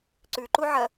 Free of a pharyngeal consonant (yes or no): no